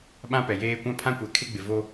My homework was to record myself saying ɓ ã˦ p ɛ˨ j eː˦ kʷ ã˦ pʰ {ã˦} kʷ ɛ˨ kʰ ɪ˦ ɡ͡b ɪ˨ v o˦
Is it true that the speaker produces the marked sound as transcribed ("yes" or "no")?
yes